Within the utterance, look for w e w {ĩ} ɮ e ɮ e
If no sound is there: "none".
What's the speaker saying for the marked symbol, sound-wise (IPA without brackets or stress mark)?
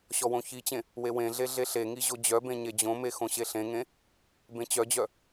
ẽ